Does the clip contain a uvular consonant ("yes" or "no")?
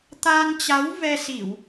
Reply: no